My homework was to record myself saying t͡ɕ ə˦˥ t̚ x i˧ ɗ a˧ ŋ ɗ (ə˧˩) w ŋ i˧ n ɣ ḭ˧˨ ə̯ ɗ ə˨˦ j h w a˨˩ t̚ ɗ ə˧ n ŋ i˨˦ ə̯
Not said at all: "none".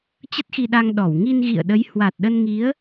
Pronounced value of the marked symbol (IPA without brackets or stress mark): ɔ˧˩